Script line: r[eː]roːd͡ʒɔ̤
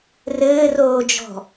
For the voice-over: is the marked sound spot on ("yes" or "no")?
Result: no